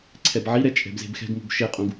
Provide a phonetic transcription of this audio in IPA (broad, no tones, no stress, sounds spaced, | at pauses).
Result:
ǀʰ ɛ b ʕ i ɾ ɛ t͡ʃʼ ɛ̤ b z e̤ b x ɛ̤ ɡ m ṳ b ʃ e qʼ ũ ɡ